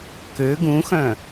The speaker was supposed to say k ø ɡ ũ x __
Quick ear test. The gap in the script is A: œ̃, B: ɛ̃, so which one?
A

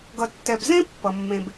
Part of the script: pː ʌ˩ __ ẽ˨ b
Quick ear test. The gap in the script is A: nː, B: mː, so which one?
B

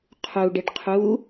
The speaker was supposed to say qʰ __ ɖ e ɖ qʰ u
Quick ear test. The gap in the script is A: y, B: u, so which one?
B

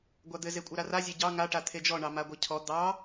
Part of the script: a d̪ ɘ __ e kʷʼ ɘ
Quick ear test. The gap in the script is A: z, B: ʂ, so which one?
A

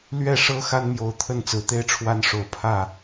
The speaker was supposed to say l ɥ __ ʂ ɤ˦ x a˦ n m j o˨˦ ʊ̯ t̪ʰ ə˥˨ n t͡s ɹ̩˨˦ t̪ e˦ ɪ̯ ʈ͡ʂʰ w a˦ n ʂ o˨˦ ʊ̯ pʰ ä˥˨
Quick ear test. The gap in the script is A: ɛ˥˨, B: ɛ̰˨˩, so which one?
A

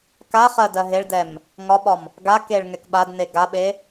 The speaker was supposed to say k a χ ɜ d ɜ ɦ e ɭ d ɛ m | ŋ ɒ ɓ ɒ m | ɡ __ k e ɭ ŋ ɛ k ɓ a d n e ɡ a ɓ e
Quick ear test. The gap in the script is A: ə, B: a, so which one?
B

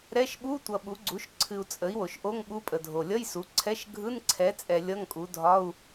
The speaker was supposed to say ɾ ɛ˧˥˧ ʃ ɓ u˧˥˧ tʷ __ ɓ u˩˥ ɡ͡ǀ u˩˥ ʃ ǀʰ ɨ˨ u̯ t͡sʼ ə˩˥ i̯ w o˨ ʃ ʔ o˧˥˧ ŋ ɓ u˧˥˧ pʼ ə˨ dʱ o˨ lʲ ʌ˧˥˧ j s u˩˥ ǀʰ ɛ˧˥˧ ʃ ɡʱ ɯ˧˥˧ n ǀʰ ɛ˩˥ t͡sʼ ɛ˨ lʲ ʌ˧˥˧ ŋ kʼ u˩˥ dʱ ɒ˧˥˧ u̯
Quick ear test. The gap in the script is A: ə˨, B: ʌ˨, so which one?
B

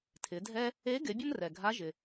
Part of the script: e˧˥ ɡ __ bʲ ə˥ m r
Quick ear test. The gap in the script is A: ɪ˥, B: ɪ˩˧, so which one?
B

